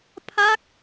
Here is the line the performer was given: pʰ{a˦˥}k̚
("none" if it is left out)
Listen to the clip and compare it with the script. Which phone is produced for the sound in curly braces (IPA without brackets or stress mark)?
a˦˥